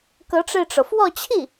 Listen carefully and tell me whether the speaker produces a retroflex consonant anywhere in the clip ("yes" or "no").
yes